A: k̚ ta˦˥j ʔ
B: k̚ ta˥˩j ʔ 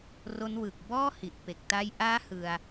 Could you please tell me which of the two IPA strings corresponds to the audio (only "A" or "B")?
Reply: B